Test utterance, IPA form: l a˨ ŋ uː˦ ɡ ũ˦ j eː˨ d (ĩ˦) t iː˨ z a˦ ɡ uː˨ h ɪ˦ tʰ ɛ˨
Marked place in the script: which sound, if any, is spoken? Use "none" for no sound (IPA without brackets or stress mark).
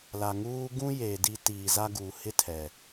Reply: i˦